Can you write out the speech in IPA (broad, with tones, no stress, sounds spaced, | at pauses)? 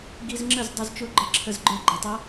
ɡ i˧ z ŋ͡ǁ ə˥˩ z dˤ ʊ˧ z t͡ʃ ʊ˧˥ ɡ͡ǃ ə˧ ǁʰ ə˧ z ɡ͡ǃ ə˞˧ ɡ͡ǃ ə˩˧ tˤ ʌ˧˥